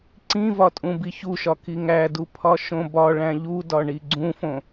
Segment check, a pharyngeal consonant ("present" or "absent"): absent